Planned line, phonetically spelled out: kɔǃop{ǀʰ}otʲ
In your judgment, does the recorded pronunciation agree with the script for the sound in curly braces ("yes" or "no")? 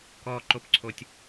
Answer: yes